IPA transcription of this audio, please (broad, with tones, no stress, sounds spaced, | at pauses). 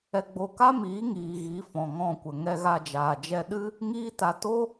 ɛ˧ ɡ͡b o˧ k a˦ m iː˨˦ ŋ iː˨ ɣ i˨˦ f ɔ̃˨ ŋ ɔ̃˧ kʷ ə˨ ŋ ɛ˧ ɣ a˧ d͡ʒ aː˨ d͡ʒ ɛ˧ ɗ ɨ˦ | ŋ iː˦ t a˧ t o˦